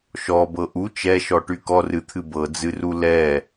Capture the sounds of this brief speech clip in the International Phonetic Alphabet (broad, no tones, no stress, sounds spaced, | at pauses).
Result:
ʃ ɔ b ɤ ʔ u t͡ʃ ɛ ʃ ɔ ʈ y k ɔ r ɨ t̪ʰ ɨ b ɤ d͡z ɨ r u l ɛ